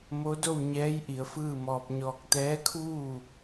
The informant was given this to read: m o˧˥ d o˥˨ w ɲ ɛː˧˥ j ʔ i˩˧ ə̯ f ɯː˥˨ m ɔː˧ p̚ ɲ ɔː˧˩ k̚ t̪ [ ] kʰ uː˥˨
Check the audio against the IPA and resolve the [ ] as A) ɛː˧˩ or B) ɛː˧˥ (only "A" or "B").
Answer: B